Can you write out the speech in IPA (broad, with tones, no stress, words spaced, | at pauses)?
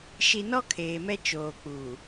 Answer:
ʃi˨nɔ˦ kʰeː˨mɛ˦ t͡ʃoː˨k͡puː˨